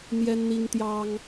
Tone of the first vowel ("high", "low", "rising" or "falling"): high